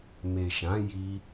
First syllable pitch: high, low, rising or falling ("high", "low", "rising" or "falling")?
low